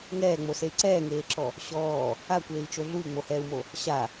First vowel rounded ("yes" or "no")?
no